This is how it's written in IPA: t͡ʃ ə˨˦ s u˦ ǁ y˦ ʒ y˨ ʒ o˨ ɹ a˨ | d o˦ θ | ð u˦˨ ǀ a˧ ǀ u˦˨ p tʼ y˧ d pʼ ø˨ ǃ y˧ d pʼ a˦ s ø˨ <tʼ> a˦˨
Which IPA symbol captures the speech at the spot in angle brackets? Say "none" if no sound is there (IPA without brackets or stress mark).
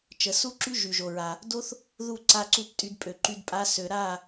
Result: ɾ